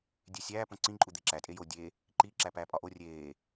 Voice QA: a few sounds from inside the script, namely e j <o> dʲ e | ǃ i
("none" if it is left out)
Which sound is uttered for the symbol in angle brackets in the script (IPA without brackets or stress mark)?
o